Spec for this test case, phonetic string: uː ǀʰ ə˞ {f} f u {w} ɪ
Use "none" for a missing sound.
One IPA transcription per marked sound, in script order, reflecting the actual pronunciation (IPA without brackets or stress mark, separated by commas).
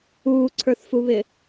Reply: θ, β